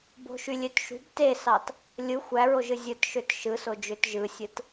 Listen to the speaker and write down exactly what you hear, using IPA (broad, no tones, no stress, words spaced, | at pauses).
bo̤ʃylʲøtʃṳb tesɑt | lʲɯ xʷæɹoʒɯ zʲɯtʃøt ʃɯsod͡ʒøt ʒɯsʲɯt